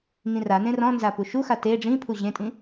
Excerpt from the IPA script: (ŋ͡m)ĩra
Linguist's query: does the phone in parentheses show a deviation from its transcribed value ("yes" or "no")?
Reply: yes